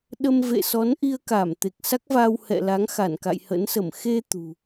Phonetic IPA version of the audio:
ɗ ə˧ m v ḛ˧˨ s ɔ˨˦ n ʔ i˧ ə̯ k a˧˩ m t̪ e˨˩ k̚ s a˦˥ k̚ v aː˧ w h ɛ̰˧˨ l a˨˦ ŋ x a˧˩ n k a̰˧˨ j h ə̰˧˥ n s ə˧˩ m x e˧ t̪ ṳ˨˩

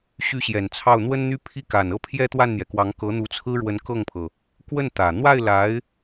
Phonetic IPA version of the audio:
ɕ y˥˩ ɕ j ɛ˨˩ n t͡sʰ ɑ˥˩ ʊ̯ n̪ w ə˥ n n̪ y˥ pʰ i˥˩ k a˨˩ n ɤ˥˩ pʰ j ɛ˥ t̪ w a˥˩ n n̪ j ɛ˩ k w ɑ˧˥ ŋ k ɤ˧˥ n̪ u˧˥ t͡sʰ ɹ̩˥ ɻ w ə˧˥ n k ɤ˥˩ ŋ pʰ ɤ˩ | k w ə˥˩ n t̪ ä˨˩ n̪ w a˥˩ ɪ̯ l a˧˥ ɪ̯

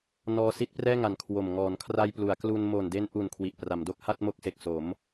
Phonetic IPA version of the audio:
n ɔː˧ s i˦˥ t̚ p r ɛː˥˩ ŋ a˨˩ n kʰ w o˨˩ m ŋ ɔː˩˦ n kʰ r a˧ j p l u˩˦ a̯ k l u˧ n m o˨˩ n d e˧ n ʔ u˨˩ n kʰ w i˨˩ ʔ p r a˩˦ m d o˦˥ k̚ h a˥˩ t̚ m o˦˥ k̚ s e˨˩ k̚ s o˩˦ m

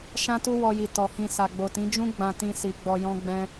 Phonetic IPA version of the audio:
ʃ ã˦ t u˦ w ɔ˧ j i˨ t ɔ˨ h ĩ˧ s a˨ ɡ͡b o˨ t ĩ˨˦ d͡ʒ ũ˦ ɡ͡b ã˧ t ĩ˧ s i˨ ɡ͡b ɔ˧ j ɔ̃˦ ɡ͡b ɛ̃˦

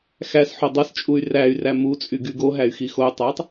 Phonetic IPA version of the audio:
x æ s ħ o dˤ æ s t͡ʃʼ u y̯ r æ y̯ r æ m u t͡sʼ y ɡ y ɡ o ɦ æ y̯ x i x o y̯ tˤ æ tˤ

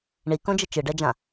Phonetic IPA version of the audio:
ɳ i k õ d͡ʒ ə t͡ʃ ɨ ɖ ɛ d͡ʒ ã

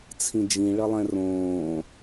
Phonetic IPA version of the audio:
t͡sʰ ĩ d͡ʒ ĩ ɭ ʌ lˠ ɛ̃ r õː

